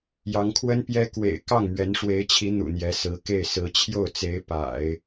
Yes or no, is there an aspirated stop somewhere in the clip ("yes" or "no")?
yes